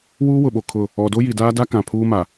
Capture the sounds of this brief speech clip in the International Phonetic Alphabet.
w uː˦ w ʊ˨ ɓ o˨ kʰ ʊ˦˨ | ɔ˨ d o˦ j i˨ d aː˦ d a˦ k ã˨ pʰ uː˦ m a˨

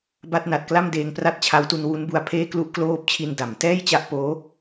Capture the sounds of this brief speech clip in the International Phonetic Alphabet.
b a˥˩ t̚ n a˨˩ t̚ k l a˥˩ m d eː˧ ŋ p r a˥˩ t̚ t͡ɕʰ a˦˥ w t u˧ n w u˦˥ n b u˧ a̯ pʰ eː˥˩ k l u˦˥ ʔ k l oː˦˥ p̚ t͡ɕʰ i˧ n d a˩˦ m t ɛː˥˩ j t͡ɕ a˦˥ ʔ p oː˦˥

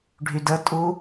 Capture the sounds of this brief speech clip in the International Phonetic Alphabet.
ɖʱ y d ə tʼ u

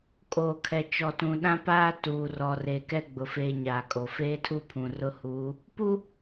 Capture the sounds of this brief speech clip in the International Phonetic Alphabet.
kʼ oː˨ kʰ ɛ˨ t͡ʃ ɔ˨ t ũ˨ ɗ ã˦ p aː˦ t uː˨ r ɔ˨ r eː˨ k ɛ˦ ɡ͡b ʊ˨ f eː˦ ɲ aː˨ kʼ o˨ f eː˦ tʰ u˦ pʰ ũ˨ r ʊ˦ h uː˨˦ | p u˦

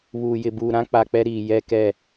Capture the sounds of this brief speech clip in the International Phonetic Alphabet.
β uː˨ j ɪ˨ b uː˨ ɾ ã˦ k͡p a˨ k͡p ɛ˦ ɾ iː˨ j ɛ˦ k ɛ˦˨

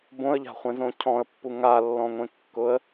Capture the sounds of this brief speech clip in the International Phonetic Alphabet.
b õ ə̯ ʎ a̤ χʷ ẽ z õ cʰ ɔ̃ ə̯ pː u ŋ a lː ɔ̃ ŋʷ ẽ kː ʊ ə̯

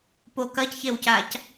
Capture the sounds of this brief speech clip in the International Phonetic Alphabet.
p o k ɐ c ç e w c a c

